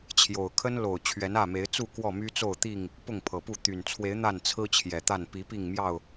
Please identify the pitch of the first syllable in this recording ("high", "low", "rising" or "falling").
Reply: low